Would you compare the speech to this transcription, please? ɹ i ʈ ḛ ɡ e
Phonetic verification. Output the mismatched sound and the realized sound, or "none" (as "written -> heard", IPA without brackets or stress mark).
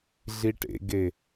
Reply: ɹ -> ɮ